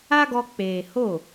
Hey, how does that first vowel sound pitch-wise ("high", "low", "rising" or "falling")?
high